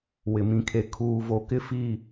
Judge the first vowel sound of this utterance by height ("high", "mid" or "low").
high